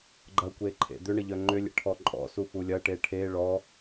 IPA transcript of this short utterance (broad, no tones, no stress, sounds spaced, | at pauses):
ɡ͡ǃ ɐ kʷ e ǃʰ ḛ d̪ ʏ ɳ ə ʎ œ ŋ͡ǃ ʏ lʲ ḛ ʈʰ ɔ ǃʼ ɔ̰ s u f u lʲ ɐ ʈ e ʈʰ e ɭ ɔ